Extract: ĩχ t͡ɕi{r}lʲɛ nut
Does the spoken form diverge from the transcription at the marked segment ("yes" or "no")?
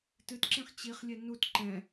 yes